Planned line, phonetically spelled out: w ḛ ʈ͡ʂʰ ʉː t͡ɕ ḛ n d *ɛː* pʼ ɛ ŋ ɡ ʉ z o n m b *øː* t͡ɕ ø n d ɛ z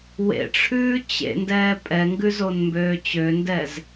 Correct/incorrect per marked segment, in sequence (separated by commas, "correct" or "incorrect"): correct, correct